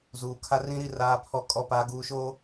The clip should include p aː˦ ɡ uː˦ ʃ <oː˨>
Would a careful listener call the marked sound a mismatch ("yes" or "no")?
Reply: yes